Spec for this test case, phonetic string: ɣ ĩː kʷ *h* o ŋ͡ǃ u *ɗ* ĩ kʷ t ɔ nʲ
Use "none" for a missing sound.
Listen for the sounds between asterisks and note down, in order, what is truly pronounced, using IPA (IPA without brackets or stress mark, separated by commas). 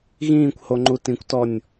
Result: h, t